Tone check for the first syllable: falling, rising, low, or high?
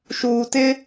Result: low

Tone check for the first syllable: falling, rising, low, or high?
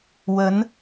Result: rising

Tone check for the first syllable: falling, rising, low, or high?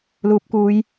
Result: low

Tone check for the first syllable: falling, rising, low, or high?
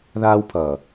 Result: high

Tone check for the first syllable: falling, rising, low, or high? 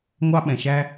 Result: high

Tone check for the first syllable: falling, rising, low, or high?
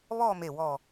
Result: falling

